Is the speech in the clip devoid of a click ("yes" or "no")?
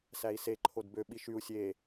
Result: no